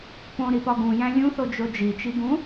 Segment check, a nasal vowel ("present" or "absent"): present